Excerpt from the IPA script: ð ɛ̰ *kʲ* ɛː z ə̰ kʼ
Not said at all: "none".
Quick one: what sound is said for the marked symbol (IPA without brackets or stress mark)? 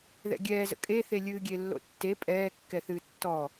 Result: ɡʲ